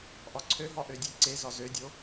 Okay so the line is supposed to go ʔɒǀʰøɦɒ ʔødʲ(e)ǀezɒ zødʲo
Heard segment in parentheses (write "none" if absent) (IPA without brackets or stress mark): e